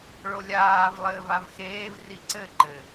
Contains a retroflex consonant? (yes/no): yes